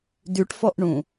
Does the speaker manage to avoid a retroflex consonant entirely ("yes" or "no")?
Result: no